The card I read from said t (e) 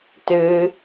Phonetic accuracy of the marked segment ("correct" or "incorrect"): incorrect